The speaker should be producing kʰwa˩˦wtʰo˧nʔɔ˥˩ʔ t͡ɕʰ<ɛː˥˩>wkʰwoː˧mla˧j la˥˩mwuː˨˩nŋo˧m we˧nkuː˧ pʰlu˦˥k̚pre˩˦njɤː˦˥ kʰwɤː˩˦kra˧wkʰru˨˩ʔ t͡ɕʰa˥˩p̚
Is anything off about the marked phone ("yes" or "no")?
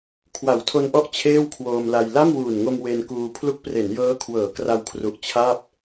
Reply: yes